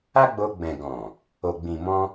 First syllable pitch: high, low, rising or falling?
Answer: high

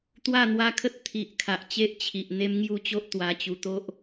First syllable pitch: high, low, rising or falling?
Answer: falling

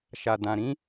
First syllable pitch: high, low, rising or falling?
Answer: low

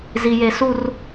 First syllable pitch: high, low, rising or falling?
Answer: high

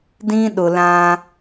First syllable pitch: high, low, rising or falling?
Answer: high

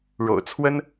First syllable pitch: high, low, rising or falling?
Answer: low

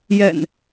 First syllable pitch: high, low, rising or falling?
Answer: low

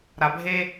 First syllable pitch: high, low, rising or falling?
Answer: low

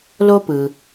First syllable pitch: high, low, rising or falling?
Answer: high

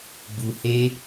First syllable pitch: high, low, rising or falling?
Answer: low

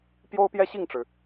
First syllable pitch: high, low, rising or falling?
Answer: high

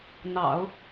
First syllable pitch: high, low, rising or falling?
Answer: low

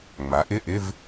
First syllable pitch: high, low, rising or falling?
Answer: rising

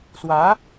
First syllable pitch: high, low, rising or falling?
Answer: rising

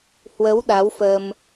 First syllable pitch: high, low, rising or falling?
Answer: rising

